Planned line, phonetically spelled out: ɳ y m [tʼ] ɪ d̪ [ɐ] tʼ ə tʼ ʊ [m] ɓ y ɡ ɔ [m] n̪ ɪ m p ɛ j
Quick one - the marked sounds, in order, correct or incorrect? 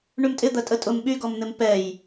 correct, correct, correct, correct

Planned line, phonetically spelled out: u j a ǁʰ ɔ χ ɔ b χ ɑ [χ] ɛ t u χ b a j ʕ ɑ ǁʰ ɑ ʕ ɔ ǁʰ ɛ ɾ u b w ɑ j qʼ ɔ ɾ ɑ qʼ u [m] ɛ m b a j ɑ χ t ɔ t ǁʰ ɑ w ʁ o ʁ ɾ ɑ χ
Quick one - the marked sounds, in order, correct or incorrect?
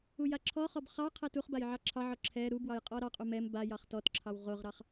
incorrect: qʰ, correct

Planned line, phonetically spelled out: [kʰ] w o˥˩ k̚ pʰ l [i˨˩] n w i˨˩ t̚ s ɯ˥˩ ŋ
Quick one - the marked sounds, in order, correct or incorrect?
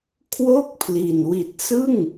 correct, correct

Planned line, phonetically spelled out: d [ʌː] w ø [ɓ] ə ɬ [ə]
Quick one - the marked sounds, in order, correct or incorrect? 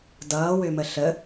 correct, incorrect: m, correct

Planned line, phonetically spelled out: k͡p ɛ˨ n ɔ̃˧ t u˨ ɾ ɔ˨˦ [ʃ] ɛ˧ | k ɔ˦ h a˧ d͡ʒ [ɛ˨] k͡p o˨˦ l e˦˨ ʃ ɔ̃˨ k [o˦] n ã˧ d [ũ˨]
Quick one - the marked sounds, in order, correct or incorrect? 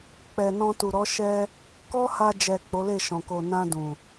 correct, correct, incorrect: o˨, correct

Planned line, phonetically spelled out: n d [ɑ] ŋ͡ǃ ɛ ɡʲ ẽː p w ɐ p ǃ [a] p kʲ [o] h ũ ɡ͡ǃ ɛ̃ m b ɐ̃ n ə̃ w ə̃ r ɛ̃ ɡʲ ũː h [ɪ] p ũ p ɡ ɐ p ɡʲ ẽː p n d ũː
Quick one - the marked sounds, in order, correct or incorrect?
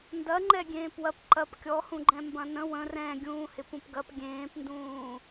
incorrect: ɐ, incorrect: ɐ, incorrect: ɔ, correct

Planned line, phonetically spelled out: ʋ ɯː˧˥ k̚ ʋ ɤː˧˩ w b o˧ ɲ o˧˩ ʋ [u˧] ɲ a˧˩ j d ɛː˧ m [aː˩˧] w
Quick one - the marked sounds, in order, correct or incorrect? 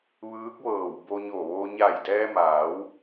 incorrect: o˧, correct

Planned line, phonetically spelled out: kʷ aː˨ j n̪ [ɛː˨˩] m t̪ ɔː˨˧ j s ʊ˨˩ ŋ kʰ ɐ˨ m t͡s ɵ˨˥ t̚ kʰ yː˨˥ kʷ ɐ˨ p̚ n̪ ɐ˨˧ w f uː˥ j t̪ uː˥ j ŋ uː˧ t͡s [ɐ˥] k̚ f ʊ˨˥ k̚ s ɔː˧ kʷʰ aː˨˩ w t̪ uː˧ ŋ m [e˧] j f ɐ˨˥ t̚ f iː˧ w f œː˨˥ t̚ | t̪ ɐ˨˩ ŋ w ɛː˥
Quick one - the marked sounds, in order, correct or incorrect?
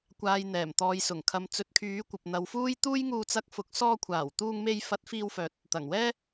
correct, incorrect: ɐ˧, correct

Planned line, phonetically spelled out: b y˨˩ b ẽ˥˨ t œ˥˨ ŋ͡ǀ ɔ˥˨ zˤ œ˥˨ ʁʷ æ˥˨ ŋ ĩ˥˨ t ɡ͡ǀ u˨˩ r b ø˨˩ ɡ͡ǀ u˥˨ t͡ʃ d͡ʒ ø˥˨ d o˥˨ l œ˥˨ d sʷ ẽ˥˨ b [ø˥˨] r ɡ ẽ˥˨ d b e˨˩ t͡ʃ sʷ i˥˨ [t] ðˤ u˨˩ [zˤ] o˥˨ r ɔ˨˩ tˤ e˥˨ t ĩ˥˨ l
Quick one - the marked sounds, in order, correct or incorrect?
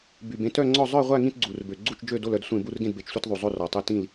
incorrect: u˥˨, correct, correct

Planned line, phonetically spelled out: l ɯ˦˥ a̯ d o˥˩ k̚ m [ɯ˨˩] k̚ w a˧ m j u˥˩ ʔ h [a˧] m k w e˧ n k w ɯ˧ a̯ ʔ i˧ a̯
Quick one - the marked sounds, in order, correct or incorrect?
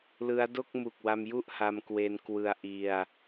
incorrect: u˨˩, correct

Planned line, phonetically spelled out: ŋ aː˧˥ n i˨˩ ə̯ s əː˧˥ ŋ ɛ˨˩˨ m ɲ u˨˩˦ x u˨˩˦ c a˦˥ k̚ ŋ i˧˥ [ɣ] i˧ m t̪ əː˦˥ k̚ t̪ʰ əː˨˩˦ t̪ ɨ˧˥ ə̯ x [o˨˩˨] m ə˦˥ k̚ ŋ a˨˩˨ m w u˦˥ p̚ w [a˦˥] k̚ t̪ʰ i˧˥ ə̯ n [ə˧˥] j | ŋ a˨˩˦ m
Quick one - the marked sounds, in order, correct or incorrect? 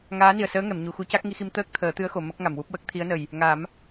incorrect: x, correct, incorrect: ə˦˥, incorrect: ə˨˩

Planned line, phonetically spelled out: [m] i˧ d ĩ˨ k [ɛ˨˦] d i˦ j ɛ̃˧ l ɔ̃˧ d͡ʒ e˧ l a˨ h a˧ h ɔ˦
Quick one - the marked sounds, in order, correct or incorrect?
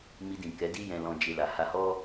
correct, correct

